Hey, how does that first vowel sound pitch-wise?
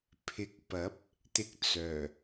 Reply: low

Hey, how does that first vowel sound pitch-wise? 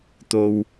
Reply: low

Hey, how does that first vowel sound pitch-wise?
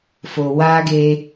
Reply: low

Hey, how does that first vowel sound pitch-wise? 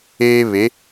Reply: high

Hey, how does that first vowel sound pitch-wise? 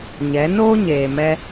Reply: rising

